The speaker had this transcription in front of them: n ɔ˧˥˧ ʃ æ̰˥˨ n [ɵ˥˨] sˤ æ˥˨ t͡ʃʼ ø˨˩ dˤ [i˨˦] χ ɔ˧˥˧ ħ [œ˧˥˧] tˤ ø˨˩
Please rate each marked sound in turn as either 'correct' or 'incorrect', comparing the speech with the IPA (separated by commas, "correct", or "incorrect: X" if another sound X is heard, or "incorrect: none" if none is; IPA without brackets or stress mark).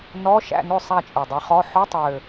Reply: correct, correct, correct